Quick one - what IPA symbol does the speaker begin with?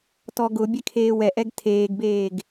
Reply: t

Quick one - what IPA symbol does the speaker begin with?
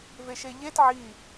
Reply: v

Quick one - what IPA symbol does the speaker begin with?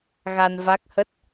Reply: ɣ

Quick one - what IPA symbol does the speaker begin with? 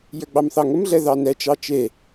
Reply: j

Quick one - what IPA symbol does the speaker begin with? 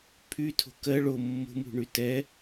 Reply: pʰ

